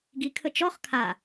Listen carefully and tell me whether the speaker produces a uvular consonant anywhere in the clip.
yes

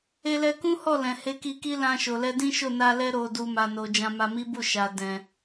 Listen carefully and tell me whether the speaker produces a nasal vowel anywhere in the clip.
yes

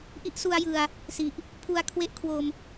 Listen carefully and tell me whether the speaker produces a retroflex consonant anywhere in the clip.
no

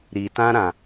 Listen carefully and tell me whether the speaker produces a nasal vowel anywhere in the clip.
yes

